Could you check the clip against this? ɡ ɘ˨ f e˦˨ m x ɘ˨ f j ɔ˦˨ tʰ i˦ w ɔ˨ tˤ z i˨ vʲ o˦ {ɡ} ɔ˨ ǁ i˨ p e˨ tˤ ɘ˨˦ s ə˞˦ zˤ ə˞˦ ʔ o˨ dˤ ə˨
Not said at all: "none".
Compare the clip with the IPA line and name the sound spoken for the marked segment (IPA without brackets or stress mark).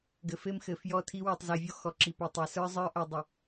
x